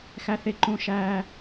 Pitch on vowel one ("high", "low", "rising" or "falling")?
high